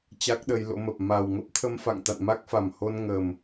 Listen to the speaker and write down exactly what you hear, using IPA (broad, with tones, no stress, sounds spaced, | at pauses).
t͡ɕ a˦˥ k̚ ɗ ə˧ j l o̰˧˥ m ə˨˩ p̚ m a˨˩ w ŋ ə˦˥ p̚ t̪ʰ ə˧ m f a̰˧˨ ŋ t̪ a̰˧˨ n m a˦˥ k̚ f a˨˩ m h o˧ n ŋ ə˨˩ m